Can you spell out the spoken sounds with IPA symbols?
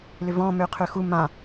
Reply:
l ʏ v ɔ̃ m ø qʰ ø x u m ã

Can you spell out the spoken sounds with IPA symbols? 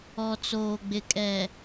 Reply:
ɔ˨ t͡s oː˨ ɡ͡b ɪ˨ kʼ ɛ˨

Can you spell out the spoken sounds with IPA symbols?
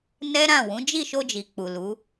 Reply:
n ɛ˦ ɾ ã˦˨ w ũ˨˦ d͡ʒ i˦˨ ʃ o˧ d͡ʒ i˨ k͡p u˨ l u˨˦

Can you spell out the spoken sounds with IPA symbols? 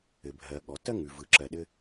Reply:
ɘ˩ bʱ ɜ˩ ɠ ɔ˩ t ɜ˥ ŋ ʉ˩ v ɯ˩ ǁ ɜ˩ ɗ ɘ˧

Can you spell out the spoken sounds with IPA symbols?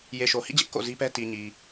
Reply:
j e˨ ʃ o˨ h ḭ˦˨ d͡ʑ ɪ˦ ʔ k o̰˦˨ z i˦ p ɛ˦ t i˨ ɲ i˨

